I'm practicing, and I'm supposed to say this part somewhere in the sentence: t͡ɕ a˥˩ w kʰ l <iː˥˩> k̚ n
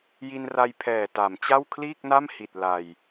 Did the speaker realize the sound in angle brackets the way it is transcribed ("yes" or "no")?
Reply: yes